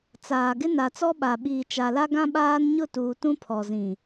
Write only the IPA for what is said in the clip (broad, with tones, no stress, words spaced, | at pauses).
t͡saː˨ɡɪ˦ na˨t͡sɔ˦ɓa˨ɓiː˨ t͡ʃa˨la˦ɡã˦ ɓaː˦nɲʊ˦˨tuː˨ tũ˦pʰɔ˨zĩ˨